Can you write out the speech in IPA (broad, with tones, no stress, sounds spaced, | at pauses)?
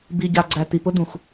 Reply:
b i˨ ɟ a˨ ɡ͡ǀ æ˨ t̪ i˨ p ʊ˦ d̪ ũ˨ x